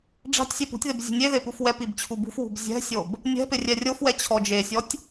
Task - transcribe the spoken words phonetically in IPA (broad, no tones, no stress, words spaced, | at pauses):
ɖ͡ʐa̤tʲsʲe pṳtʲðɪb zʲṳnʲeðe pufwɛpib t͡ɕʰubṳfwṳb zʲɛ̤sʲob | nʲɛ̤pɪ rʲɛrʲofwɛ t͡ɕʰɔd͡ʒesʲɔtʲ